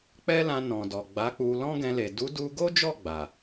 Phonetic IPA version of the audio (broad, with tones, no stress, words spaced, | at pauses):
k͡pɛ˦lã˧ nɔ̃˨dɔ˨ ɡ͡ba˨˦k͡pu˧ lɔ̃˦ɡɛ̃˧le˨ du˨˦du˧ɡo˦d͡ʒɔ˦˨ ɡ͡ba˨